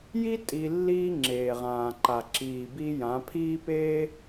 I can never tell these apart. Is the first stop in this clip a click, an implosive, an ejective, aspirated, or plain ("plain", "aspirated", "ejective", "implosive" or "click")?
ejective